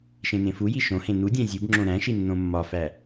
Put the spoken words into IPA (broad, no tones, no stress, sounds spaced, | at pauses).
ʃ ẽ n ẽ f u j i ʃ õ h ẽ n u dʲ æ̃ zʲ u b ŋ͡ǁ õ ɾ æ̃ ʃ i nː õ mː ɒ f æ